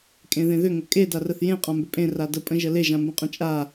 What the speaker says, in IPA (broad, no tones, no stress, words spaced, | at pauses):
kʼẽðẽðʏ ŋəkʼe darəθjẽ qʼãmbʏpʼẽ radə pʼə̃ʒəle ʒãmbə̃qʼə̃t͡ʃʼa